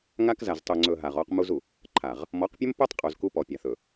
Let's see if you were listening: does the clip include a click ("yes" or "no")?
yes